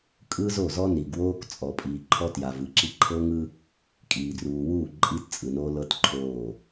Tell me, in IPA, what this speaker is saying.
kʼ ɯ˦ z o˦˨ z ɔ˦ n i˨ ɡ w oː˦ k t͡sʼ ɔ˨ pʼ iː˨ ǃʰ ɔ˦ t j a˨ v ɯ˨ ǁ i˦ ǃʰ ɤ˦ ŋ ɯ˦ | kʼ iː˨ d r uː˨ w uː˦˨ ǃʼ i˦ t t͡sʼ ɯ˨ n oː˦ l ɤ˦ t ǃʰ oː˦˨

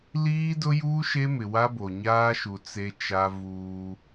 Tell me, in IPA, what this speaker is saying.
l iː˦ d ʊ˦ j uː˦ ʃ e˦ m ɪ˨ w a˦ b o˨ ɲ aː˦ ʃ u˨ t͡s e˦ t͡ʃ a˦ v uː˦

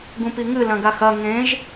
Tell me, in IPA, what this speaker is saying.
ɡ ũ p i ŋ ɨ l ɐ̃ ɡ a x ɐ ŋ ẽ ʒ

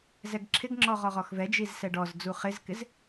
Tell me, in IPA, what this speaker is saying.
z ɛ ɡ ǁʰ ɪ ɡ ŋ͡ǁ ɔ ʁ ɔ ʁ ɔ x v ɛ d͡ʒ i z s ɛ ɖ ɔ z d͡z u χ ɪ z k ɪ z

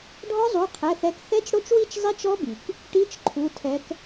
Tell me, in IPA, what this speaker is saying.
ɖʱ ɔ˦˥ zˤ u˩˧˩ qʰ ɛ˩˧˩ θ ɛ˨˦ k θ ɛ˦˥ t͡ʃ ɽ o˦˥ t͡ʃ w i˥˧ t͡ʃ zˤ i˦˥ t͡ʃ ɔ˦˥ b i˩ k | ʈ i˧˥˧ t͡ʃ ǃʰ u˩˧˩ tʰ ɛ˨˦ k

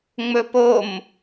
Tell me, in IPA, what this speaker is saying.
ŋ͡m ɵ p o m

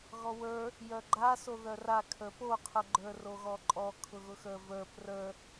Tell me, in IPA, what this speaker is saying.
ɣ ɔ w ə˞ | j œ ɡ͡ǃ a s o ð œ r a kʰ ə˞ p o qʰ ʊ ɡ͡ǃ ə˞ r o ɣ ɔ ǃʼ ɔ kʰ ʊ ɣ ʊ x ə˞ v ə˞ p r ə˞

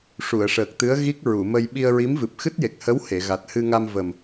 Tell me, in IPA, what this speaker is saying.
ʂ u˨˩˨ ə̯ ʂ əː˨˩ k̚ t̪ ɨ˧˥ ə̯ ɣ i˦˥ k̚ ɹ u˨˩˨ m ə˧ j ɓ i˧ ə̯ ɹ i˧˥ m v ɨ˨˩ p̚ x ɨ˦˥ t̚ j e˨˩ k̚ h ə˧˥ w h e˨˩˨ ɣ a˨˩ t̚ h ɨ˧ ŋ a˧ m v ə˨˩ m

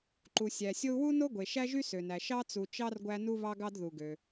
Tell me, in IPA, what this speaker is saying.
ǃ u˩ sʲ æ˩ sʲ o˦ u̯ w u˥ n o˥ ɡʷ e˩ ʃ æ˥ ʒ y˥ s ø˩ n æ˩ ʃ ɑ˥ t͡s u˨ t͡ʃ ɑ˥ r ɡʷ æ˦ n u˦ β ɑ˦ ɡ ɑ˦ d ð u˩ ɡ ø˩

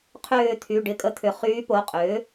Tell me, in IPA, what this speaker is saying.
qʰ ʏː˦˨ t̪ʰ y˩˧˩ ɖ ɪ˦˨ kʼ ə˦˨ t̪ʰ ʏ˨˩˦ χ yː˧˥ p o˩˧˩ qʼ ʏː˩˥

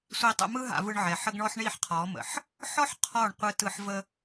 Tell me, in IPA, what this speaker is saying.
sʷ i˧ tˤ ə̰˧ m ɯ˦ ɦ a̰˧ v ɯ˧ ɳ ʕ ɛ˨ ħ ə˦ ɡ ɳ ɔ˦ ħ ɳ i˦˨ ħ qʰ ɔ˨˦ m ə̰˨ ħ | ħ ɔ˦ ħ qʰ ɔ˦˨ ɳ qʷ ɯ˧ t ɯ˧ ħ v ə˦

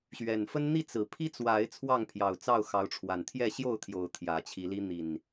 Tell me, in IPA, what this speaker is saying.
ɕ ɥ ɛ˨˩ n f ə˦ n n̪ i˥˨ t͡s ɹ̩˨˩ pʰ i˦ t͡s w a˨˦ ɪ̯ t͡sʰ w ɑ˥˨ ŋ pʰ j ɑ˨˩ ʊ̯ t͡s ɑ˥˨ ʊ̯ x ɑ˨˦ ʊ̯ ʈ͡ʂʰ w a˨˩ n t̪ʰ j ɛ˥˨ ɕ j o˥˨ ʊ̯ t̪ʰ j o˨˦ ʊ̯ t̪ʰ j ä˨˦ t͡ɕʰ i˨˦ l i˦ n̪ i˨˩ n

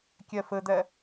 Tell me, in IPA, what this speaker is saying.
kʲ ɛ f ɘ d̪ ɛ

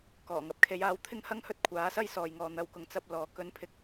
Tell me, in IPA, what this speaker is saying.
k ɔː˨˩ ŋ ɐ˨˥ p̚ kʰ e˨˧ j aː˧ w t̪ʰ ɪ˥ ŋ h ɐ˥ ŋ h ɵ˥ t̚ kʷʰ aː˨˥ s ɐ˥ j s ɔː˨ j ŋ ɔː˨ n̪ ɐ˨˧ w k ʊ˨ ŋ t͡s ɐ˧ p̚ l ɔː˨ k ɵ˥ n pʰ ɪ˥ k̚

